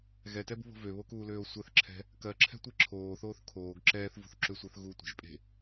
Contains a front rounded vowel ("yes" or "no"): yes